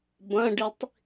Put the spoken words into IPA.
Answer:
b ɐ̃ ɖ i tˤ

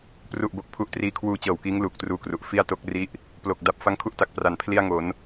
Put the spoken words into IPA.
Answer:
p r u˨˩ ʔ b o˨˩ k̚ pʰ u˦˥ ʔ t r iː˦˥ kʰ w uː˧ t͡ɕ ɤː˨˩ w k iː˦˥ ŋ l uː˨˩ k̚ t r uː˦˥ k r u˨˩ ʔ f i˥˩ a̯ t o˥˩ k̚ r i˥˩ ʔ | p l o˨˩ k̚ d a˨˩ p̚ f a˦˥ ŋ kʰ u˦˥ ʔ t a˨˩ k̚ p r a˩˦ n pʰ l i˥˩ a̯ ŋ o˩˦ n

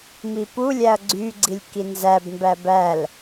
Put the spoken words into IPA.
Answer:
m i p u lʲ æ ɐ̯ ɡ͡ǀ y ɡ͡ǀ i lʲ k i n z æ b m b æ b æ l

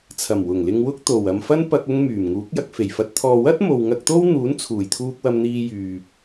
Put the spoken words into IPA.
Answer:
t͡sʰ ɐ˨˩ m w ʊ˨˩ ŋ l ɪ˧ ŋ w ʊ˥ k̚ t̪ o˨˩ w ɐ˨ m f ɐ˥ n p ɐ˧ k̚ ʊ˧ ŋ m yː˨˩ m ŋ uː˨˥ k̚ j ɐ˧ k̚ f e˨˩ j f ɐ˧ t̚ t̪ʰ ɔː˨ w ɐ˥ t̚ m o˨ w ŋ ɐ˧ k̚ t̪ o˥ w n̪ uː˨˥ n t͡sʰ uː˨˩ j t̪ʰ uː˧ k̚ w ɐ˧ m n̪ iː˧ j yː˨ p̚

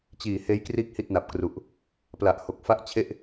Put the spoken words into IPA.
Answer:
t͡ɕ iː˨˩ h eː˦˥ j k r iː˦˥ k̚ h i˥˩ t̚ n a˨˩ p̚ k r u˨˩ ʔ | p l a˨˩ ʔ h o˨˩ k̚ f a˥˩ ʔ t͡ɕʰ e˥˩ ʔ

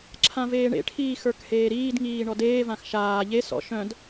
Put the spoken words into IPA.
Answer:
ǁʰ ã v eː ɳ ḛ ʈʰ iː x ə˞ k h eː ɾ iː d ŋ iː ɳ ɔ d eː v ã x ʃ aː ʎ e s ɔ̰ ʃ œ̃ d

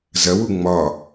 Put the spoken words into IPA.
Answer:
z ɐ w u ŋ͡m ɒ

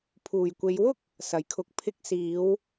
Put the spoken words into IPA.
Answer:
pʰ uː˨˩ j kʷ e˨˧ j w ʊ˥ k̚ | s ɐ˨˩ j kʰ ʊ˨˥ k̚ pʰ ɪ˧ k̚ s iː˨˧ w

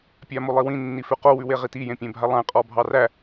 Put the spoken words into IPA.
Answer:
pʲ a m o lˠ i w ĩ nː i f ʉ q o w ʉ w e ʁ i t i j ẽ pʲ ẽ bʱ a lˠ æ̃ qʼ ɔ bʱ ɑ r æ

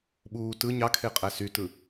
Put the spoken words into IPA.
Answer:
ɓ uː t ɯ ɲ ɑ kʰ e qʼ æ s y t ɯ

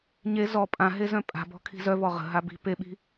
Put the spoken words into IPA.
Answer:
ɲ e z ɔ pʼ ã ɦ e z œ̃ pʼ a̤ b ɔ̤ kʰ i̤ z œ v ɔ ʁ ə̤ ɦ a b i̤ p e ɓ i̤

